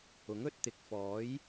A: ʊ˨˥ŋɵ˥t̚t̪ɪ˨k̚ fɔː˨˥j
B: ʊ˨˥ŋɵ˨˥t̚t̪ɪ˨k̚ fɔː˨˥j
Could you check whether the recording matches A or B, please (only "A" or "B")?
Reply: A